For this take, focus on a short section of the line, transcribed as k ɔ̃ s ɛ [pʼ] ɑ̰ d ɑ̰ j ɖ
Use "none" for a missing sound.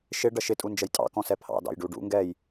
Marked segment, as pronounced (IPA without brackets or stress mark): pʰ